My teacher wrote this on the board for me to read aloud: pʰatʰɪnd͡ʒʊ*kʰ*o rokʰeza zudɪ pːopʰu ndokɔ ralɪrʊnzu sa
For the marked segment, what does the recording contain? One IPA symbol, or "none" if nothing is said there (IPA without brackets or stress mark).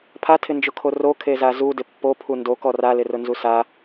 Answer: kʰ